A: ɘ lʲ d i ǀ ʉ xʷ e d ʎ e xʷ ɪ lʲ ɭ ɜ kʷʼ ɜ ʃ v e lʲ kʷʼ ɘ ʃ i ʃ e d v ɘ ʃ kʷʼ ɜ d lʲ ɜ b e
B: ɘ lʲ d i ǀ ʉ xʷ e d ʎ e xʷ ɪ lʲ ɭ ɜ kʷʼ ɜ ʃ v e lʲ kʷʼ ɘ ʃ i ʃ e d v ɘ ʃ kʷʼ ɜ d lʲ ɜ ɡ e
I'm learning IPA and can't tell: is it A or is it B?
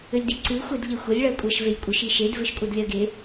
B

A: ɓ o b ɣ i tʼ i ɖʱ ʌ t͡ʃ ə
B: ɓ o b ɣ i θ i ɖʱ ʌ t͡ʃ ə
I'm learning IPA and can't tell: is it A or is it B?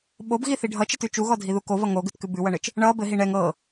B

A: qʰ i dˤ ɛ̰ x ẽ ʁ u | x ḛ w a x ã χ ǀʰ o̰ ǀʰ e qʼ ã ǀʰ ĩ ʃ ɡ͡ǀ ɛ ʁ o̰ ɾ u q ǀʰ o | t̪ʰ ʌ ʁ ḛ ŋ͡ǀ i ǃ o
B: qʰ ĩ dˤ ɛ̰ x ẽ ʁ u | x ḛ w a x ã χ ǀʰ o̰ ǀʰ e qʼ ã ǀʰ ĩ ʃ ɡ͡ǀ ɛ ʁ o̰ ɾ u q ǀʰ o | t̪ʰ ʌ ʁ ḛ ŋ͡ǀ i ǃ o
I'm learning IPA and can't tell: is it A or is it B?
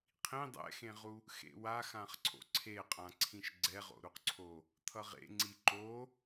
B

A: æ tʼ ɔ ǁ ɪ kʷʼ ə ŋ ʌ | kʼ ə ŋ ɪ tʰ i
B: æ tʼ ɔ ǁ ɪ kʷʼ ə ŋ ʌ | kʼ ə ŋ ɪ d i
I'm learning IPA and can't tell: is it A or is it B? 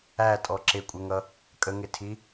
A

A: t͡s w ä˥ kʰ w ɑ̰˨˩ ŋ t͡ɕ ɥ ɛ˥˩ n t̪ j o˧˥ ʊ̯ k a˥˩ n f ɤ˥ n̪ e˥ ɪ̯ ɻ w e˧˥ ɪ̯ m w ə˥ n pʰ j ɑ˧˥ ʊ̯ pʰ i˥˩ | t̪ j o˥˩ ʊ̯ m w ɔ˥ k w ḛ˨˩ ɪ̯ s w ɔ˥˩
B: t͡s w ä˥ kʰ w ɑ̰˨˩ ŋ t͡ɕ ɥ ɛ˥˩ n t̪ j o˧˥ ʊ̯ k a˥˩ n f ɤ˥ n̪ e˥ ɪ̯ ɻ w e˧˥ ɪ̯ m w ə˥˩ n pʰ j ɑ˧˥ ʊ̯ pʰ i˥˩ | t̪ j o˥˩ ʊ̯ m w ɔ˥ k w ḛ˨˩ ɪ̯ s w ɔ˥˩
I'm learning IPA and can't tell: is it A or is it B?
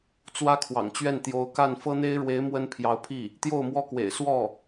A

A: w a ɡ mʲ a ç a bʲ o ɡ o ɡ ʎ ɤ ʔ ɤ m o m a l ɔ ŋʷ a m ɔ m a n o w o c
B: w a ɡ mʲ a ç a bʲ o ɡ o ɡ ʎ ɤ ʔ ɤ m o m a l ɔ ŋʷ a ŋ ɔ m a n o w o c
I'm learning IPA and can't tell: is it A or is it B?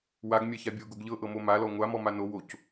A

